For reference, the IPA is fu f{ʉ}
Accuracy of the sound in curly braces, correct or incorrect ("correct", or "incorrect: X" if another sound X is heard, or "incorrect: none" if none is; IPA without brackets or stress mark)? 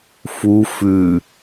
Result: correct